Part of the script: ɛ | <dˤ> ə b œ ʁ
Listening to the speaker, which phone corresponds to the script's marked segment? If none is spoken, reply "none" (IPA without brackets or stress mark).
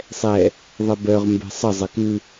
ðˤ